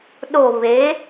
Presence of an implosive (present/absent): present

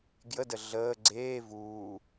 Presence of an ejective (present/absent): absent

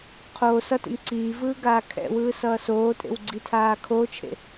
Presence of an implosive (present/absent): absent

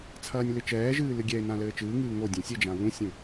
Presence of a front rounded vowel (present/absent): absent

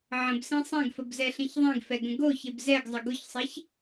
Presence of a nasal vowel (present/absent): present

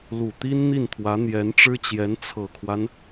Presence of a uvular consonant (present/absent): absent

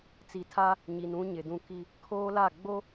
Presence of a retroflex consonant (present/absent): absent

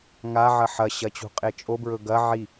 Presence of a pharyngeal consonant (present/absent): present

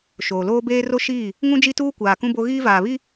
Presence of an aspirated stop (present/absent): absent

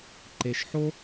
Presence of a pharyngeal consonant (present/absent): present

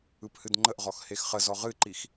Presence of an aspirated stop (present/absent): absent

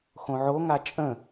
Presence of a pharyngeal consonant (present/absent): present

